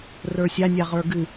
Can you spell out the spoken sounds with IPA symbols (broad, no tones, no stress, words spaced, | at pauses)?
rə˞sʲa nʲaʁə˞ɡɨ